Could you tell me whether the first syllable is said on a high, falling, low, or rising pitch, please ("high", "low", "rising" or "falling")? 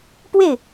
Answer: falling